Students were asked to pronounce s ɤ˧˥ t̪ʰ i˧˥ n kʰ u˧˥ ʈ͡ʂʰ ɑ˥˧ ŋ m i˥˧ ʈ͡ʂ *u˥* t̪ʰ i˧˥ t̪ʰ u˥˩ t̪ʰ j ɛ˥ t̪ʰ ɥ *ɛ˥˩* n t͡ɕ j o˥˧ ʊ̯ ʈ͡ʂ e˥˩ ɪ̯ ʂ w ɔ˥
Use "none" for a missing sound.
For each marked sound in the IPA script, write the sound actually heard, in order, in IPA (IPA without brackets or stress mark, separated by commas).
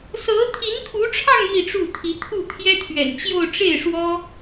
u˥˩, ɛ̰˨˩